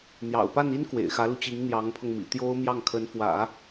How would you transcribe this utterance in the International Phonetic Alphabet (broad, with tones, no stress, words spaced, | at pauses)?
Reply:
n̪jɑ̰˨˩ʊ̯pa˥˩ni˥n kwḛ˨˩ɪ̯xä˧˥lu˧t͡ɕi˧˥ŋ n̪jɑ˧˥ŋpʰɤ˧ŋmḭ˨˩ t̪jo˥ʊ̯mjɑ˥˩ŋkʰə˧˥nfwä̰˨˩˦